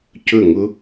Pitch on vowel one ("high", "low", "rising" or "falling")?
falling